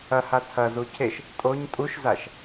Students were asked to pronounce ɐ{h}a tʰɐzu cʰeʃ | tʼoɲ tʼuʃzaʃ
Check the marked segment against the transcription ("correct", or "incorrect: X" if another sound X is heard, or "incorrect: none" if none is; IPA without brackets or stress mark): correct